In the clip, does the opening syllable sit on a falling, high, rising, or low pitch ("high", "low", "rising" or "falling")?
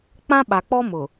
high